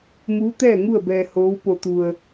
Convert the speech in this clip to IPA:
m uː˧˥ t̪ ɛː˥˨ ŋ u˥˨ ə̯ b ɛː˧ h oː˧˥ w p o˧ t̪ u˧ ə̯

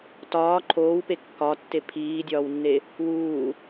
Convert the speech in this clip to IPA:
t ɒː ǃʰ oː w p e kː ɒ tː e pʰ iː dʲ ɒː w nː e | w uː

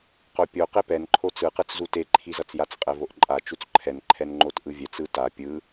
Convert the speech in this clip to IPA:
q o pʲ o q e p ɛ n ǃʰ o t͡s ɯ q ɯ t͡s z u t e ǃʰ i z ʌ t͡s j a t͡s qʼ ɛ v o ʔ ǃʼ a t͡ʃ u t͡s ǃʰ ɛ n ǃʰ ɛ n ŋ͡ǃ o t ʔ ɯ vʲ ɛ t͡s ɯ t a pʲ ɯ

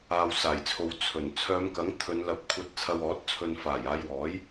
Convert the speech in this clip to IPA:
aː˨ w s aː˨˩ j t͡sʰ o˨ w t͡sʰ ɵ˨˩ n t͡sʰ œː˨˧ m k ɐ˨˥ ŋ t̪ʰ ɵ˨˧ n l ɐ˧ p̚ kʷʰ ɐ˧ t̚ t͡sʰ ɐ˧ w ɔː˨˥ t̚ t͡sʰ ɵ˧ n f aː˨˩ j aː˨˧ j w ɔː˨˥ j

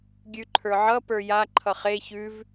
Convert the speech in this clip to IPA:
ɡʲ ʉ ǃʰ ə˞ ʕ ʌ p ə˞ j a ǃʰ ʌ χ e ç ʉ v

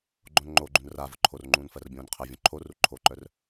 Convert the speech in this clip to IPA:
ɡ͡ǃ õ n ŋ͡ǃ o ɡ͡ǃ ũ n r a v ʊ ǃʰ o r ŋ͡ǃ ũː n f ɜ r bʲ õː n qʰ ɜ vʲ õ ǃʰ o r u ǃʰ o ǃ œ r

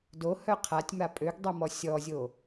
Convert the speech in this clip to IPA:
d o h œ qʰ a tʲ m a pʼ ø ɡ dˤ o m ɔ sʲ ɔ zʲ o

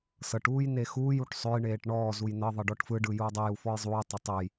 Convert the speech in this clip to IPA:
s ɤ ʈ uː j n e x uː j u ʈ sˤ ø j ɳ eː ʈ ɳ ɔː z u j n ɤ ðˤ ɤ ɖ ɔ ʈ f ɯ ɖ ɯ j uː dˤ ɯ j u f ɔ j zˤ uː tˤ ɐ tˤ ø j

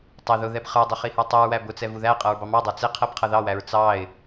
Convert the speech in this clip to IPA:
tˤ ɪ ð ʊ ð ɛ b χ ə˞ dˤ ɪ χ i h ə˞ tˤ u ɹ w æ b ʊ t͡s ɛ v u ð æ qʼ ʌ ɹ b ɑ m ɑ dˤ ə˞ t͡s ɪ qʰ ɛ b qʰ ʌ ð ɑ w æ ɹ t͡s ɑ ɪ̯

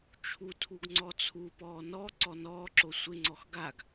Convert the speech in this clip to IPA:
t͡ʃʰ u tʰ u ɡ ŋ͡ǀ ɔ t͡sʰ u p ɔː n ɔ ǀ ɔ n ɔː ǁ o sʷ ɪ ŋ͡ǀ ɔ x ɡ a ɡ

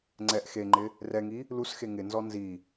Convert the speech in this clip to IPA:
ŋ͡ǀ ɛ ʔ x e ŋ͡ǃ ɪ | r ɛ ŋ i | l u s x e ŋ ɪ n z ɔ n z i

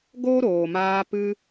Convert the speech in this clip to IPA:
ɡ o˦ ɾ oː˨ m aː˧ p ɨ˧

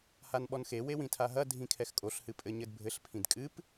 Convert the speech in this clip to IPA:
h a n ɓ ɔ n x e w e w ĩ tʰ a ɦ ɐ dʱ ĩ kʰ ɛ x kʼ o ɬ h ɨ pʼ ɘ ɲ ɘ d bʱ ɘ ɬ pʰ ĩ d kʼ ɨ p

